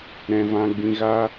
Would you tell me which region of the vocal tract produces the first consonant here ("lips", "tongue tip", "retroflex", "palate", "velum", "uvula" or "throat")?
tongue tip